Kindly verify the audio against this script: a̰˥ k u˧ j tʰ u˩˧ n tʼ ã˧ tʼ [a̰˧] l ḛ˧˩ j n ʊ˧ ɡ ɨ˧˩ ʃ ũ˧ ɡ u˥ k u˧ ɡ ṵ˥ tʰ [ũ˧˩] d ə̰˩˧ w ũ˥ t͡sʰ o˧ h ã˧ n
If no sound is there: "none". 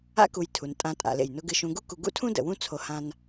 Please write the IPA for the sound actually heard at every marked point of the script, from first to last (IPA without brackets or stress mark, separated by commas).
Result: a̰˩˧, ũ˥